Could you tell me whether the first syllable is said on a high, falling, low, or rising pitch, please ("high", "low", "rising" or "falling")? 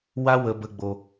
high